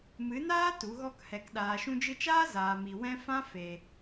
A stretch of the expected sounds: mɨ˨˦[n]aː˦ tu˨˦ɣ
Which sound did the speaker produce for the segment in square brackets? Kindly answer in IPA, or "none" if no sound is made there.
n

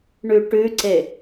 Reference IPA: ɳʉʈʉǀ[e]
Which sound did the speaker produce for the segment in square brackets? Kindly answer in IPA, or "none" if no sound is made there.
e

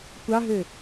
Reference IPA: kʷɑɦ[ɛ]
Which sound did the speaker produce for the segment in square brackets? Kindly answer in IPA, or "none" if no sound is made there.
ø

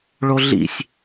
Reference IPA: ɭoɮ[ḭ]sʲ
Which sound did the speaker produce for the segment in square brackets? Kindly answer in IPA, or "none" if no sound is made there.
ḭ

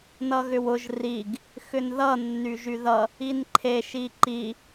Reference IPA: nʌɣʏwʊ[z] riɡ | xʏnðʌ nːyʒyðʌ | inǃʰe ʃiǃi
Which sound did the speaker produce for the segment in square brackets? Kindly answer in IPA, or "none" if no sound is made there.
ʒ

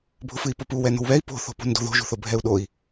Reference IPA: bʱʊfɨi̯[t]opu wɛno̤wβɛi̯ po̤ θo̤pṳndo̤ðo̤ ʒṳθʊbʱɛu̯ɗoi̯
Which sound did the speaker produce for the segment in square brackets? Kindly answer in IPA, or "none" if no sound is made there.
p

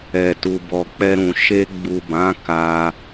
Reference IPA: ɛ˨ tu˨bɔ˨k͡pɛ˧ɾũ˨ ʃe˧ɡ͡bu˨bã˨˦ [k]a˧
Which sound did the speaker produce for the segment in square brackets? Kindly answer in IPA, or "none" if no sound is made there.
k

